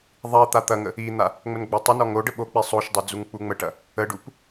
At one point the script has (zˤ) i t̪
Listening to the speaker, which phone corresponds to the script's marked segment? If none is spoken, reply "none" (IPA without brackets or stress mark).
ðˤ